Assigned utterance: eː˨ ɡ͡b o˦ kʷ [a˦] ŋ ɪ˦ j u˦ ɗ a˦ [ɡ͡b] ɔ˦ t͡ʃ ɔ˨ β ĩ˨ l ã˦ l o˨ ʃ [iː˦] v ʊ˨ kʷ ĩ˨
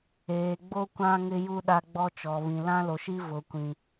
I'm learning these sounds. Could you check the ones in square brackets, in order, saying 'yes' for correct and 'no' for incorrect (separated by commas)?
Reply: no, yes, no